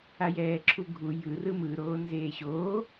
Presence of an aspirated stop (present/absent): present